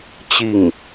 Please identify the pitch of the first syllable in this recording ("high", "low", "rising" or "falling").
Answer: falling